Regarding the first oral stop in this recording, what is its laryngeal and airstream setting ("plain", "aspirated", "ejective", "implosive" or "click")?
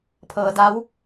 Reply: aspirated